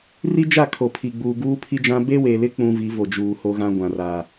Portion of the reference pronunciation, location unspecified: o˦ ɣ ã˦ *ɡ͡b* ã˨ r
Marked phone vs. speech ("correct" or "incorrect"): incorrect